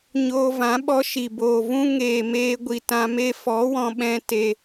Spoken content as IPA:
ɲ oː˧ v ã˨˦ ɓ ɔ˧ ʃ i˨ b oː˨ v ũ˦ ŋ eː˨ m eː˧ ɡʷ i˨ t ã˧ m e˦ f ɔ˨˦ w ɔ̃˧ ɓ ɛ̃˧ t e˧

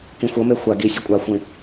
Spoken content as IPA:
k ĩ xʷ ʌ m e xʷ a ɡ i sʲ e kʷʼ a xʷ ĩ

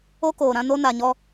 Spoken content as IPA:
o˦ k oː˨ ɾ ã˦ n o˦ n a˨ ɲ ɔ˦

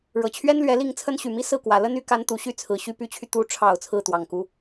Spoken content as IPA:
ɻ ɤ˨˩ t͡ɕʰ ɥ ɛ˥ n l ɥ ɛ˧˥ l i˥˩ ŋ t͡sʰ ə˥ n ɕ y˨˩ m i˥ s ɹ̩˥˩ k w ä˨˩ l ə˥ n y˧˥ k a˧˥ n t̪ u˨˩ ɕ y˥˩ t͡sʰ ɹ̩˨˩ ɕ y˥ p y˧˥ t͡ɕʰ y˧ t̪ u˧˥ ʈ͡ʂʰ ɑ˨˩ ʊ̯ t͡sʰ ɹ̩˥˩ t̪ w ɑ˨˩ ŋ k u˧˥

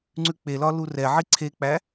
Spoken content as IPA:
ŋ͡ǀ ʉ k͡p e l ɒ l u r ɛ ʕ i ǀʰ e k͡p æ

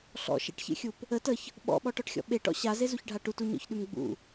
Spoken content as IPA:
ɬ ɔ̰ ʃ ḛ ʈ ç ḛ xʲ u p | ə t ə ç | ɓ ɔ̰ ɓ ɔ ʈ ɔ ʈ xʲ ɔ̰ ɓ e ʈ ɔ̰ ɕ a z e z u ç ɖʱ a ʈ u t u ɲ ɔ̰ ç ɗ ʉ m ɡ͡b ṵ

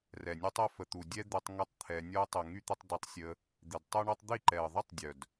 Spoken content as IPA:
r ɛ˨ nʲ e˦ tˤ ɛ˦ f ə˨ t̪ u˨ dʲ ɛ˦ d̪ e˧ tˤ ŋ ɛ˦ tˤ t̪ʰ ɛ˧ nʲ ɔ˦ ə̯ tˤ ə˨ ŋ y˦ t̪ ə˧ tˤ d ɛ˧ tˤ sʲ ə˧ | d̪ i˨ d tˤ o˦ ɳ ɔ˦ tˤ d̪ i˦˨ ǃ ɛ˨ ə̯ ðˤ i˦ tˤ dʲ œ˨ d

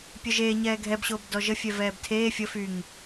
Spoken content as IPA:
pʲ œ ʒ eː ɲ ɛː ɡʱ ɛ b ɕ oː b d ɔ ʒ ə fʲ ɛ v ɛː b tʰ eː fʲ ə f y ŋ

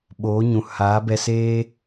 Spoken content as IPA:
ɓ oː˨˦ ɲ ũ˨ h aː˨˦ b ɛ˧ s eː˦

